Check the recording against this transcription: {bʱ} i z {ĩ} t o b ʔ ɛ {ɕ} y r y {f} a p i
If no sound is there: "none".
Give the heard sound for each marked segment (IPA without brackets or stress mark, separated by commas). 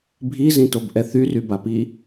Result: bʱ, ĩ, θ, b